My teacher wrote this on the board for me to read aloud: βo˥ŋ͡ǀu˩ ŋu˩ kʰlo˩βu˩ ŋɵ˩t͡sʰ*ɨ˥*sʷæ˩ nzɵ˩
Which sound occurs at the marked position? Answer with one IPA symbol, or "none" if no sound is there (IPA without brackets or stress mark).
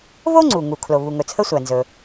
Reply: ə˥